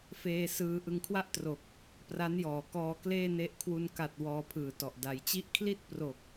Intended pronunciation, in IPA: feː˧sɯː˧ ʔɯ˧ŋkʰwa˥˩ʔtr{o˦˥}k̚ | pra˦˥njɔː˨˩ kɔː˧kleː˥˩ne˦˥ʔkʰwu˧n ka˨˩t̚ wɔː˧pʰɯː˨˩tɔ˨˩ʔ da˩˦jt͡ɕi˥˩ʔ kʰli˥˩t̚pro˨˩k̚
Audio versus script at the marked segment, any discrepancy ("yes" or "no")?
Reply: yes